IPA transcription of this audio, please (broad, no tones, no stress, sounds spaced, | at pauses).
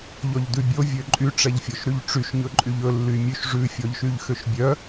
ʎ ɔ ʎ d ʉ bʲ o vʲ ø ǃʼ y ʈ͡ʂ ɛ ʎ fʲ ɔ ʃ ɾ y ʎ ʈ͡ʂ y ʃ ɲ ɵ ǃʼ y ʎ ɵ lː y mʲ ʉ ʃ ʐ ʉ fʲ ɔ ʎ ʃ y ʎ x ø ʃ bʲ œ